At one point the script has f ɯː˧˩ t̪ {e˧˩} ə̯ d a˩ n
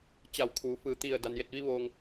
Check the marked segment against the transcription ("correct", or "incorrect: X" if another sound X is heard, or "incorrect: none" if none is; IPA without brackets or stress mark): incorrect: i˧˩